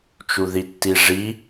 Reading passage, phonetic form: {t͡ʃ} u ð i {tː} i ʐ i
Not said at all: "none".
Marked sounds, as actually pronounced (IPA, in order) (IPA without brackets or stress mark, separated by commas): t͡ʃ, tː